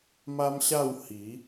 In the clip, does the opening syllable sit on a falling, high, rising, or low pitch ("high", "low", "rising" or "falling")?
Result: high